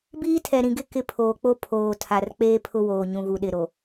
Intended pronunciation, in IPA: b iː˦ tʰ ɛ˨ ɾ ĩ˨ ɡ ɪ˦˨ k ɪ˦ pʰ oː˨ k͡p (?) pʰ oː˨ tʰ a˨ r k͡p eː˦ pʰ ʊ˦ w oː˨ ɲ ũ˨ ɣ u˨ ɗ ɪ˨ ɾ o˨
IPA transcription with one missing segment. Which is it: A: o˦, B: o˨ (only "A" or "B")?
A